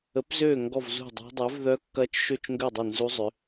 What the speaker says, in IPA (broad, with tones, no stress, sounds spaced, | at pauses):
ə˨˥ p z øː˥˨ ŋ ɡ ɔ˥˨ v z ṳ˥˨ dˤ ɛ̤˦˥ dˤ œ˨˥ v ð œ˦˥ kː ɐ˦˥ t͡ʃ ʃ ø˥˨ t͡ʃ ŋ ɡ ø˥˨ dˤ ɐ˥˨ n z u˦˥ zˤ ʏ˨˥